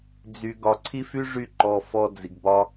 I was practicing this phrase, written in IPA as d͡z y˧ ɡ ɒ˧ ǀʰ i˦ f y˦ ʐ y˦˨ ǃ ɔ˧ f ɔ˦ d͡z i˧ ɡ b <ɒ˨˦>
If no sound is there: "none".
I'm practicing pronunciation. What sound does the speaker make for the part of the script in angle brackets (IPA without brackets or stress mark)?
ɒ˦